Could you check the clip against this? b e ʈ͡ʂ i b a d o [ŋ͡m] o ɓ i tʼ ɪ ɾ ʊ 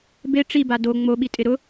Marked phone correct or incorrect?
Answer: correct